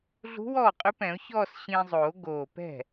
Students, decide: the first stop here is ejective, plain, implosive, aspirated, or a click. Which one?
ejective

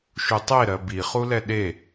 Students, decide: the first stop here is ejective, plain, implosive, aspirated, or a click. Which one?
plain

